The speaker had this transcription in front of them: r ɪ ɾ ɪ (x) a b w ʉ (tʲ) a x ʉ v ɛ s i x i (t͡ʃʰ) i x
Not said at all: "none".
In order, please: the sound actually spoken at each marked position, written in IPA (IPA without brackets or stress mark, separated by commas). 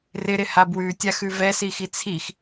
h, tʲ, t͡sʰ